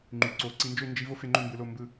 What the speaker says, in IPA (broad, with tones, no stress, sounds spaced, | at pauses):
ŋ͡ǃ y˩˧ ǀ o˩˧ ǀ i˧ n d͡ʒ ø˥˧ n d͡ʒ i˥ v o˥ f e˧ ŋ͡ǃ ø˥˧ m b ɯ˧ l o˥˧ m b ɯ˥˧